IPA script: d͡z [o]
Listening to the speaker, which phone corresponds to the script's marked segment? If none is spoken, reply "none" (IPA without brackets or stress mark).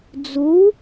u